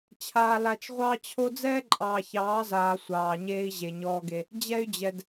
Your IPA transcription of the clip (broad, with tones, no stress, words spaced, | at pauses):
t͡ɕʰaː˨ la˨t͡ʃʁʷɑː˦t͡ɕʰo˦ d͡zɛː˦ǃʼɑː˨çɑː˨˦zaː˨ sʷɑː˨ɲeː˦i̯ʑe˨ ɲɔː˦ɡe˦ | d͡ʑɛ˦y̯d͡ʑɛ˨d